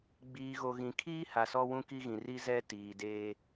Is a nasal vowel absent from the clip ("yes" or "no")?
no